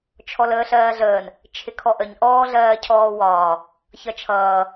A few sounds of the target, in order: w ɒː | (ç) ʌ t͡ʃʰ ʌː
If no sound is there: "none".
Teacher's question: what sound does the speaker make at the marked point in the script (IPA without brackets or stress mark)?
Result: ç